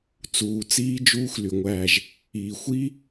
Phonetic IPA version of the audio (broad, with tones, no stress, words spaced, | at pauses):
t͡suː˨ t͡siː˦d͡ʒuː˦x ly˨ŋʷæː˦˨ʒ | iː˨xʷiː˦